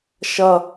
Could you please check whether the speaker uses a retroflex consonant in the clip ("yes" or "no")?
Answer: no